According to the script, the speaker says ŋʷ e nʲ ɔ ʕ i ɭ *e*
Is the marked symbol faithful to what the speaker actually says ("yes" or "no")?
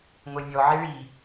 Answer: no